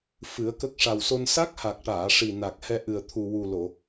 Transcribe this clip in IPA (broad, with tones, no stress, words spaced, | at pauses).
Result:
fɨ˨˩˦ə̯kə˦˥k̚ʂa˨˩w so˧n sa˦˥k̚ha˨˩k̚ʈaː˨˩˨ ʂi˨˩na˨˩k̚ hɛ˧ʔɨ˨˩ə̯ t̪ʰu˨˩wu˨˩lo˨˩˨